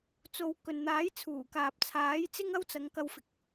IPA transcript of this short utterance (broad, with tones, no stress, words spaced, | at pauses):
t͡so˧w kɵ˨nn̪aː˨˥j t͡sʰuː˨˩kaː˨p̚ t͡sʰaː˨˥jt͡sɪ˥ŋɐ˥wt͡sɐ˨˧ŋ kɐ˧wfɪ˨k̚